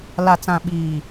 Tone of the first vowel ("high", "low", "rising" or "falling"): low